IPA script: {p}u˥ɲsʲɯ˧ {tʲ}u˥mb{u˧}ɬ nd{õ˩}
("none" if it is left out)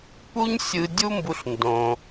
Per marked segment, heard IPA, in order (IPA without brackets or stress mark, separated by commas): p, dʲ, u˧, õ˩